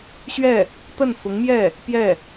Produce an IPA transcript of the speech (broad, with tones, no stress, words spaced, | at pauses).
ɕɥɛ˥˩ | t̪ə˥˩nfʊ˧˥ŋmjɛ˥˩ | pjɛ˥˩